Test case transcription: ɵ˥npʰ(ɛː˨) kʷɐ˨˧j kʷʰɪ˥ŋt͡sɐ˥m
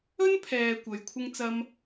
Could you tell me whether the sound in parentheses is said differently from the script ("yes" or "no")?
no